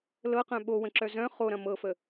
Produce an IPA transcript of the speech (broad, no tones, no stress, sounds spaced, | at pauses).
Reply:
l ɤ q œ̃ ɓ o w ə̃ ǁ œ z œ̃ χ o ɾ ɐ̃ m ɤ f ə